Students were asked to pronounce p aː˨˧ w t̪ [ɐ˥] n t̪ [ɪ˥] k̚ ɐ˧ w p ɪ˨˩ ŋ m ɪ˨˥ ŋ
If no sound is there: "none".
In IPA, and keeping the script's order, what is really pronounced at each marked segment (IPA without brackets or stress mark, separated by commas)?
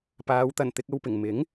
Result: ɐ˨˩, ɪ˧